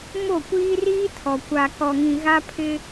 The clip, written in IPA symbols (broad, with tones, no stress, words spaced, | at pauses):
mo˦˨kʷiː˦ riː˦tʰɔ˨ kʷa˨kɔ˨ŋĩ˨ɣa˦ pʰɪ˦